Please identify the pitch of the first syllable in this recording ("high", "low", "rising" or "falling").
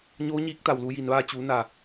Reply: rising